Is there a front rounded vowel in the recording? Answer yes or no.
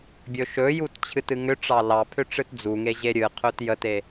yes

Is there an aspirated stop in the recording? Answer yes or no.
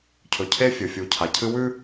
yes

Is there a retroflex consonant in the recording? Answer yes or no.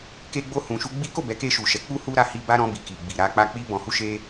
no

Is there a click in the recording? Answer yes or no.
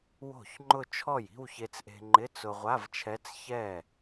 yes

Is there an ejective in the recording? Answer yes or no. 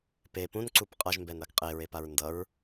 yes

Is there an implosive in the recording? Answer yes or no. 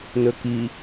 no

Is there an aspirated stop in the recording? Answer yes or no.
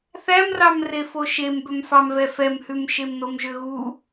no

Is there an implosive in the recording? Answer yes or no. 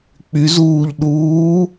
yes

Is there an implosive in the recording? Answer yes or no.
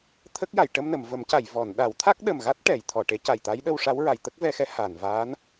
yes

